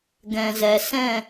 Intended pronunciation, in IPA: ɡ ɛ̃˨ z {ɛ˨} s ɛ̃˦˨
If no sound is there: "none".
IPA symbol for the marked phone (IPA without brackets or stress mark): ɛ˨